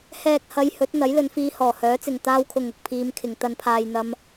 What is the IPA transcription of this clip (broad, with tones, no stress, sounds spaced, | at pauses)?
h ɛː˨ k̚ h ɐ˨˧ j h ɵ˨˥ t̚ n̪ ɐ˨˥ j l ɵ˨˧ n f iː˧ h ɔː˨˩ h œː˨˥ t͡s ɪ˨ ŋ t̪ aː˧ w kʰ ʊ˨ ŋ ʊ˨ k̚ pʰ iː˨˧ m kʰ ɪ˨ ŋ t̪ ɐ˧ n pʰ aː˧ j n̪ ɐ˧ m